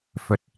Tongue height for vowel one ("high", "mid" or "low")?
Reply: mid